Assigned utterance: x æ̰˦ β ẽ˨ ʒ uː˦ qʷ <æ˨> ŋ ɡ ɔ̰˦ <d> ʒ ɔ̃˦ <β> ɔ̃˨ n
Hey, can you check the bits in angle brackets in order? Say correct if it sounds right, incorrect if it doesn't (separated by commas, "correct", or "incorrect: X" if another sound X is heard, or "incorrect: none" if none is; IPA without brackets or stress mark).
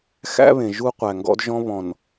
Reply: correct, correct, correct